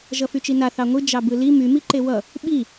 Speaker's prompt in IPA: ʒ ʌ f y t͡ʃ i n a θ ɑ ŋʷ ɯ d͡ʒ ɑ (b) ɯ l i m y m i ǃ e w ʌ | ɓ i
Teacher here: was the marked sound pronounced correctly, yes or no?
yes